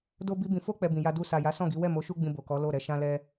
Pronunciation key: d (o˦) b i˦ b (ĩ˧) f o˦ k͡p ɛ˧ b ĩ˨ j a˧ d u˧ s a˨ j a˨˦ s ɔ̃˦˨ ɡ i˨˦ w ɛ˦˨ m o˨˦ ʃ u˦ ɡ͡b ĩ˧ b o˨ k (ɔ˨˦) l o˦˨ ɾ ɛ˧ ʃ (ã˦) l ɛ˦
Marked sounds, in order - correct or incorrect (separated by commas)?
correct, correct, correct, correct